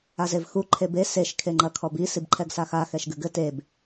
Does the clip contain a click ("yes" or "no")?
yes